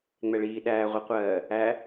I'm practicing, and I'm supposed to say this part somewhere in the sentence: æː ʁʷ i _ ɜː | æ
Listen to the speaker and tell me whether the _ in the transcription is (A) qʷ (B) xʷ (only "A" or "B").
A